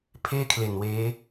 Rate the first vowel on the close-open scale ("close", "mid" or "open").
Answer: mid